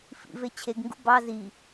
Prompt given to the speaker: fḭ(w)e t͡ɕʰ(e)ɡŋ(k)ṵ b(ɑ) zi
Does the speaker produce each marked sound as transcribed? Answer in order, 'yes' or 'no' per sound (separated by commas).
no, yes, no, yes